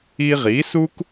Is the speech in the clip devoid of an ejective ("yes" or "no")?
yes